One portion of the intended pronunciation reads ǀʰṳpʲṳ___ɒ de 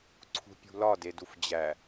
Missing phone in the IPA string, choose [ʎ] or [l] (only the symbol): l